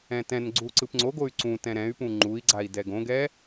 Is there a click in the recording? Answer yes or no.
yes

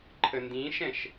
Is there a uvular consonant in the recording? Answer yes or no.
no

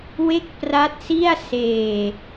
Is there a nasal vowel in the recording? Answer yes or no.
no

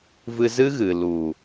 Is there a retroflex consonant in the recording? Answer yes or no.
no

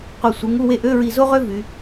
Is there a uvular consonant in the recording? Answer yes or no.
yes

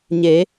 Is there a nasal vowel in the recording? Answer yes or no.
no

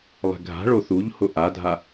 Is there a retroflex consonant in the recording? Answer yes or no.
yes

